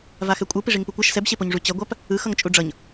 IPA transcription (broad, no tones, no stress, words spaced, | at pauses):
vaxɛkʷʼɯ piʐiŋpukʷaʃ sɛbɕepoɲʐu t͡ɕʌɡʷap | ɯxʌŋ t͡ʃʼuɖ͡ʐʌɲ